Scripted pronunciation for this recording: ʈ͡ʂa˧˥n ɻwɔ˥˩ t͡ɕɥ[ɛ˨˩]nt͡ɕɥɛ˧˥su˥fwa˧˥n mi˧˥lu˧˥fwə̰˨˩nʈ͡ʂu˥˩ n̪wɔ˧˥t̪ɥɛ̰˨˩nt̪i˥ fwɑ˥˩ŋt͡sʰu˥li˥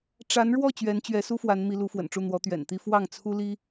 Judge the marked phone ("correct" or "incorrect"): incorrect